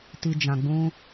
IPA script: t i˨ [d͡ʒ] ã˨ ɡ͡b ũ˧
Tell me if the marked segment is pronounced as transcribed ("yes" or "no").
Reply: yes